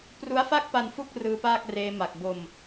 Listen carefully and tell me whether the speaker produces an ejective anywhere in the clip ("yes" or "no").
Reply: no